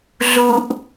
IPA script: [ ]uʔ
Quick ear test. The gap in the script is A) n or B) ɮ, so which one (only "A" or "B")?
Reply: B